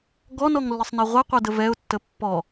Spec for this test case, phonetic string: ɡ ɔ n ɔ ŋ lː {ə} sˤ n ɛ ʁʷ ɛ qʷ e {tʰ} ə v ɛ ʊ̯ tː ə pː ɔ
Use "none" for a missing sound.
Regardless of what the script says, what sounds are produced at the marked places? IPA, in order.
ə, d

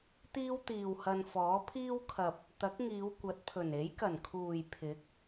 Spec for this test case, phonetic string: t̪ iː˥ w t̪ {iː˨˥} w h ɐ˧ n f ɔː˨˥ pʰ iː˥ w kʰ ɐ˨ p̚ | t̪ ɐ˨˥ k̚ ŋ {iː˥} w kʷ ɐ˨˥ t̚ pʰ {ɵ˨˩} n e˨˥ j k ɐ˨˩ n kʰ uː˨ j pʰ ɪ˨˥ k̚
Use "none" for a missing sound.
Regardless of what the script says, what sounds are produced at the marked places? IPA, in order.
iː˨, iː˨˧, ɵ˨˩

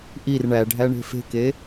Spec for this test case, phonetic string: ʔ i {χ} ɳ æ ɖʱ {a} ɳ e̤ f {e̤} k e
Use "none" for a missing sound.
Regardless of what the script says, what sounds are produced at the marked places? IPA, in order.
r, æ, e̤

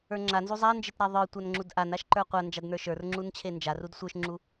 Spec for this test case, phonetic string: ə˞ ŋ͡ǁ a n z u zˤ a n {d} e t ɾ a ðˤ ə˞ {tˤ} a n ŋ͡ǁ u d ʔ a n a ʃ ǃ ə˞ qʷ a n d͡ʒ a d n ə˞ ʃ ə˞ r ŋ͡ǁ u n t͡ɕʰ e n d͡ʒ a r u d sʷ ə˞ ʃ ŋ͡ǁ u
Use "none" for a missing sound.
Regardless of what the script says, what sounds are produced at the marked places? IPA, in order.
d͡ʒ, tʷ

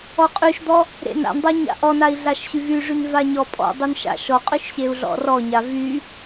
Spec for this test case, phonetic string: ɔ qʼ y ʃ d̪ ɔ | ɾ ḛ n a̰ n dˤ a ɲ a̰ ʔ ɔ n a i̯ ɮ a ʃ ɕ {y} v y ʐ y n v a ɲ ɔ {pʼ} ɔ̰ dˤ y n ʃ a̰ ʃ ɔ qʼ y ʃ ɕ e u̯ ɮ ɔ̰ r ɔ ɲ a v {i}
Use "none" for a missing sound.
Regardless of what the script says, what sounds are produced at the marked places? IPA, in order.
y, pʼ, y

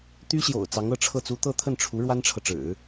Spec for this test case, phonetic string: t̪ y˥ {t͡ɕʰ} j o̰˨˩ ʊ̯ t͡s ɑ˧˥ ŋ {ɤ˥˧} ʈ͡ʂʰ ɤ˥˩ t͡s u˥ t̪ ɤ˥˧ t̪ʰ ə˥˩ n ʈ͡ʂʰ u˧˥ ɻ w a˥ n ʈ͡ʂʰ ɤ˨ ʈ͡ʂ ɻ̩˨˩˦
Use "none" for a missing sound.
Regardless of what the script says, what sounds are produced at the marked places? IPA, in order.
ɕ, ɤ˥˧

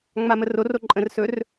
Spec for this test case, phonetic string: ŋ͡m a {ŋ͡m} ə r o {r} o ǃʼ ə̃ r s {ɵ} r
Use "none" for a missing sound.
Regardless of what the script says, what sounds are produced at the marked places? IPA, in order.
m, r, ɵ

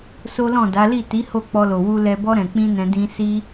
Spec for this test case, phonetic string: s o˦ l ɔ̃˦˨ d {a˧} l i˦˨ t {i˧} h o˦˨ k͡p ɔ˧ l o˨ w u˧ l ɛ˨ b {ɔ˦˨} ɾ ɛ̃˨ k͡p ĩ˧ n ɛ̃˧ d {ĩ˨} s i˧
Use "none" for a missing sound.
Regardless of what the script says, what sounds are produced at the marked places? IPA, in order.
a˨˦, i˨˦, ɔ˧, ĩ˧

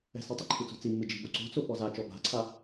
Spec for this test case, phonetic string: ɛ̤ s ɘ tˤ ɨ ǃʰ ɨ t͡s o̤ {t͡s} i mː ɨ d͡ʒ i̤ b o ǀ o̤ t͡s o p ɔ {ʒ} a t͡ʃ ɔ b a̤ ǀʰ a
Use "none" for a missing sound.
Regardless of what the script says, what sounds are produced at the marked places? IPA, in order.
t͡s, z

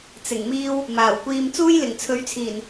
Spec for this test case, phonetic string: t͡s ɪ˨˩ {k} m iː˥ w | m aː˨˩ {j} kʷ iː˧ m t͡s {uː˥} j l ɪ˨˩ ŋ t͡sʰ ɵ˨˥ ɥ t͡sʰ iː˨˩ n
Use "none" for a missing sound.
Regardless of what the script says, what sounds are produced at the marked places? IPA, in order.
ŋ, w, uː˥

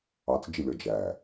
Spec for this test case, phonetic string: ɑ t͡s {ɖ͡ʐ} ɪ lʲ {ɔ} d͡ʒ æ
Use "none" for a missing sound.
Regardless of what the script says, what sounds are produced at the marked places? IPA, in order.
d͡ʒ, ɔ

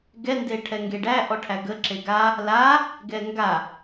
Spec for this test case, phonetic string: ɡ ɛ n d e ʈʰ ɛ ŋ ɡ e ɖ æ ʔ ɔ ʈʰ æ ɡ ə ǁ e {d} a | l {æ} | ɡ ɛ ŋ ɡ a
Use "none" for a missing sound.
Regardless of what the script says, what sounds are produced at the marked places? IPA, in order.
ɡ, a

